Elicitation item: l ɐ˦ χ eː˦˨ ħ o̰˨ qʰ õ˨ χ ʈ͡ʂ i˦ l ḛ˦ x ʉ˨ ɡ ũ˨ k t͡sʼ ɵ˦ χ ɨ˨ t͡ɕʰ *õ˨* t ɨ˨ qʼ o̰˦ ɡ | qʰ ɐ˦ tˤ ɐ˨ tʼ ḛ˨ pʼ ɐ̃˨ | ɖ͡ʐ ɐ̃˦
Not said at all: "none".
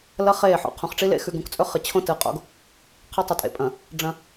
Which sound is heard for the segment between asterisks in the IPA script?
õ˦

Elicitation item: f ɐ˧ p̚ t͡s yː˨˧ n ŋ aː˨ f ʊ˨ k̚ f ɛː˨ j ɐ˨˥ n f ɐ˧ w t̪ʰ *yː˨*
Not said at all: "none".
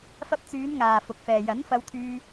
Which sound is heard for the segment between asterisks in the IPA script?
yː˧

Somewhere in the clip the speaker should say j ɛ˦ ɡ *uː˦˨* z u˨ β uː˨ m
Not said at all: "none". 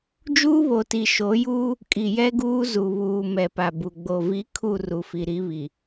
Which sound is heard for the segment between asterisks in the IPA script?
uː˦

